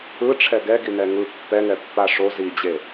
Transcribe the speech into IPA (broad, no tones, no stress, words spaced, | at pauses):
ɯʈ͡ʂʰɛ ɡɛɡinɛ ŋɯ pːɛŋɛpːa ʂo zid͡ʑe